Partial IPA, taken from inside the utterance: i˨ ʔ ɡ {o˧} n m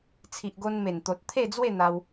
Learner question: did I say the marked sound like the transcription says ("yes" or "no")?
yes